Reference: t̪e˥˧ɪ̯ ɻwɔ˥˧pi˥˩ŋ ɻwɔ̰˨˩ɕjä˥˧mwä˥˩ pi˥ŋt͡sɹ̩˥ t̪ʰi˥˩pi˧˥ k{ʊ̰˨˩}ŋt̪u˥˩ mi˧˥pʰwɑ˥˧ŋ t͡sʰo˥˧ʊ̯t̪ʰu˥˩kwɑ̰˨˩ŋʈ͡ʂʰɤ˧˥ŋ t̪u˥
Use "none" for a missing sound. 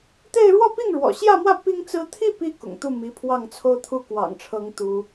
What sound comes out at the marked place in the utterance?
ʊ̰˨˩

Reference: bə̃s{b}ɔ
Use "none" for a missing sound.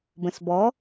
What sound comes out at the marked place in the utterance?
b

